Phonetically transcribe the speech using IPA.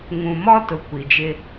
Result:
ŋ ũ˨ m ɔ˦ t ʊ˨ kʷ i˨ d͡ʒ ɪ˦

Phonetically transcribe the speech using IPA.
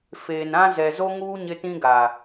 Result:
f eː˨ n ã˦ z ɛ˨ z o˦ ŋ uː˦ ɲ ɪ˦ t ĩ˦ ɡ a˨

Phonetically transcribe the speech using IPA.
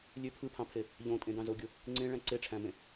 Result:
lʲ ø pʰ ɯ pʰ ɑ̃ pʰ e | ʎ õ tʼ ẽ d ɑ̃ z o ɡʲ o | ŋ͡ǀ ẽ ɭ æ̃ ǀ e ʈ͡ʂʰ æ̃ m ẽ

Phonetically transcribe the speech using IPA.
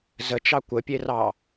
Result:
z ə t͡ʃ ɑ kʷ ə pʲ e r ɑ

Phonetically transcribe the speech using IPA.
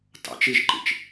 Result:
t ɑ̰ t͡ʃ i ʒ ǃ ḭ t͡ʃ

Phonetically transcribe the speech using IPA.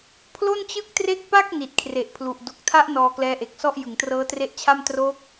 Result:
pʰ l o˥˩ n t͡ɕ ɯ˥˩ k̚ t r e˥˩ k̚ p a˥˩ k̚ n i˨˩ t̚ kʰ r e˨˩ ʔ pʰ l u˨˩ ʔ d o˨˩ k̚ tʰ a˦˥ ʔ n ɔː˧ k l ɛː˦˥ ʔ e˨˩ k̚ s ɔ˥˩ ʔ j ɯ˩˦ ŋ t r ɤː˦˥ t r e˦˥ ʔ t͡ɕʰ a˥˩ m t r o˦˥ k̚

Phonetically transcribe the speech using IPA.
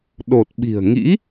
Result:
ɗ o˨˩ t̚ ɓ i̤˨˩ ə̯ ŋ ḭ˧˥

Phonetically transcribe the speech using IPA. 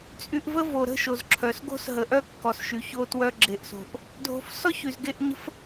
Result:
t͡sʼ y˨ ʔ v ə˦ v o˩ ɾ ə̤˥ ʃ o˩ z ǁʰ œ˩ s ɡ o̤˥ s ɦ ə˨ ʔ œ˥ kː ɔ˨ s ʃ y˩ ç o˥ t w œ˦ ɡ͡ǁ e˨ ʔ s o̤˨ ʔ | dʱ o̤˨ f s ɔ˥ ç y˨ z ɡ e˦ ʔ ɲ ə̤˥ f

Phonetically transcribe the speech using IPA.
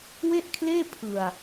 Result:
w e˥˩ ʔ kʰ l eː˥˩ pʰ ɯ˧ a̯

